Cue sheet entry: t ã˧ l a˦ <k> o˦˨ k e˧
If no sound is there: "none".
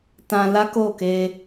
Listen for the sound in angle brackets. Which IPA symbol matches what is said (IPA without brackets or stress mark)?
k